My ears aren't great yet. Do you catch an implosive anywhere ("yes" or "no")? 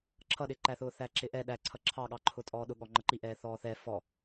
yes